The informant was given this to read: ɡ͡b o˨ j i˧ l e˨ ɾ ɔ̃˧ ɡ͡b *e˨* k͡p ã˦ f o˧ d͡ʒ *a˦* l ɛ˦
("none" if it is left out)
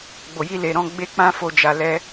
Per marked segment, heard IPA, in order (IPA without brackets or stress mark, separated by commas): e˦, a˧